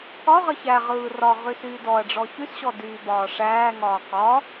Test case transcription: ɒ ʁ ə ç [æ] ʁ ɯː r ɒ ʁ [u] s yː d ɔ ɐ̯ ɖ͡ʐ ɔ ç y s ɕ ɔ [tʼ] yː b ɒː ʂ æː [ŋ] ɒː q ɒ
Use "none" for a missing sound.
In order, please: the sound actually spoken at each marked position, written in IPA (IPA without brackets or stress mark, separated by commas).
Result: æ, y, d, ŋ